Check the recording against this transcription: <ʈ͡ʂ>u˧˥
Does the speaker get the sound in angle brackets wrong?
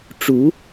no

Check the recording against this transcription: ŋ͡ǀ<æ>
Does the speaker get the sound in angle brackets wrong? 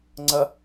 yes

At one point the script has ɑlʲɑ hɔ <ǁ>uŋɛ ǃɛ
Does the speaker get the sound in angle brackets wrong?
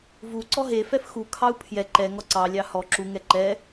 no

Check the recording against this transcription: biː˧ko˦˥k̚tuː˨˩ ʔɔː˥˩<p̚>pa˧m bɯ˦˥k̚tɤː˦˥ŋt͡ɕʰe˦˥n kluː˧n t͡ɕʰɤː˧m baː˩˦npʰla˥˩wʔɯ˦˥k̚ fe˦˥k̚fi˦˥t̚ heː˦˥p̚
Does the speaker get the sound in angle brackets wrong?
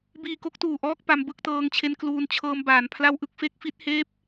yes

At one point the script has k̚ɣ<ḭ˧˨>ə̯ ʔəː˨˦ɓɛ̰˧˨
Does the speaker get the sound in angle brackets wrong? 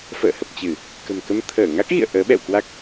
no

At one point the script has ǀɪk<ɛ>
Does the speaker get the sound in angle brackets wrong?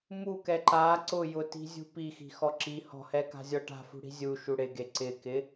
yes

